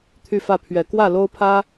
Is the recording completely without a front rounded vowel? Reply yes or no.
no